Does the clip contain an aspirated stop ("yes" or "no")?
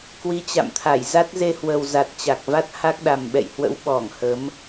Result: yes